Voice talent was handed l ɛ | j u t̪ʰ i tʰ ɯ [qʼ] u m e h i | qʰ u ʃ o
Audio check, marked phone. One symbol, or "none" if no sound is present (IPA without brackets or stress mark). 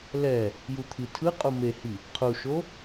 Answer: qʼ